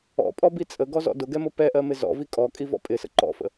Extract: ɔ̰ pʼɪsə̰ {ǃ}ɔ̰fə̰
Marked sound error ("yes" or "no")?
no